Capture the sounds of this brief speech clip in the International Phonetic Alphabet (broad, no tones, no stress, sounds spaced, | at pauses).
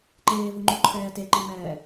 ǃ eː v ɯ ŋ͡ǃ u ǃʰ ɛː t e ǃ i m ɛː